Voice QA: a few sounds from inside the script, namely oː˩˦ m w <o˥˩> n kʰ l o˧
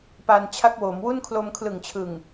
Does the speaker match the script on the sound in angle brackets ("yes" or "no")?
no